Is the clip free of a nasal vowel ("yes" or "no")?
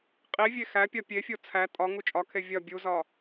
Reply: yes